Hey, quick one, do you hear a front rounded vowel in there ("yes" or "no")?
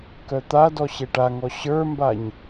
yes